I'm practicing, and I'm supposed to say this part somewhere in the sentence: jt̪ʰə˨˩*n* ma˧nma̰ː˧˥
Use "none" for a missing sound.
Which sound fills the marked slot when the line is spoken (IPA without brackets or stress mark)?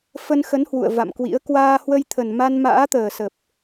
n